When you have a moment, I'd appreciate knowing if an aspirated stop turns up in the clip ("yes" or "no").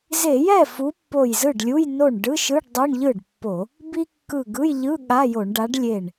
no